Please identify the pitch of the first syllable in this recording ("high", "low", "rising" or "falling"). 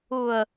low